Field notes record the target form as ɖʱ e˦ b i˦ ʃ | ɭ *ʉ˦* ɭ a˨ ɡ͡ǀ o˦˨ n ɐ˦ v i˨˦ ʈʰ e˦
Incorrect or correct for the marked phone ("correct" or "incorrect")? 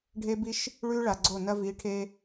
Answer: correct